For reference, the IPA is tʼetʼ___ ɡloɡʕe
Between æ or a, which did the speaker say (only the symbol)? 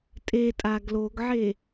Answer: a